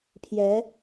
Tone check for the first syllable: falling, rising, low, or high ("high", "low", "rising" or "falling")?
rising